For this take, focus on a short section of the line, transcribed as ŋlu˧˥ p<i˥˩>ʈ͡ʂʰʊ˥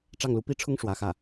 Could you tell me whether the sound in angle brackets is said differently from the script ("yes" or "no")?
yes